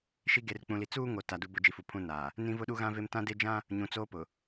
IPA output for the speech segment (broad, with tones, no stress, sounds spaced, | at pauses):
ʃ i˦ ɡ e˨ r k͡p ũ˨ l i˨ t͡s uː˦ ŋ o˨ t a˨ d u˨ b ʊ˨ d͡ʒ i˨ f u˨ pʰ ũ˨ n aː˨ | n ĩ˦ v ʊ˦ ɗ u˦ ɣ ã˦ v e˦ m t ã˦ d e˦ d͡ʒ ã˦ | ɲ ũ˨ t͡s oː˦ p ʊ˨